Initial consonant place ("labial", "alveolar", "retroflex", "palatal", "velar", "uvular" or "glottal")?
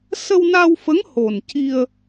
alveolar